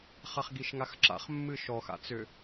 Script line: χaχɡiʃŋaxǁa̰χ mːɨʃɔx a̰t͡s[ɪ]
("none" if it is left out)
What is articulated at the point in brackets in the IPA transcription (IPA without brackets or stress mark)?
ʏ